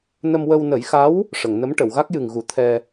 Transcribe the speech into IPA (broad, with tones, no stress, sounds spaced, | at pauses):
n ə˧ m w ə˧ w n ə˨˩˦ j x a˧˥ w | ʂ ə˨˩˨ ŋ n ə˧˥ m ʈ ə˨˩˨ w ɣ a˦˥ k̚ j ɨ˨˩ ŋ ɣ u˨˩˦ t̪ʰ ɛ˧